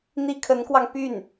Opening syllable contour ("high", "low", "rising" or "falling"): high